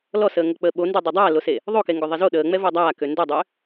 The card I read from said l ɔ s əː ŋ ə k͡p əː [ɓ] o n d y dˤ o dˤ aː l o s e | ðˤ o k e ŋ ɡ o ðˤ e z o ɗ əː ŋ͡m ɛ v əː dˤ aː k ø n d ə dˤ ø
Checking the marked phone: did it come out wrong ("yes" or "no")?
no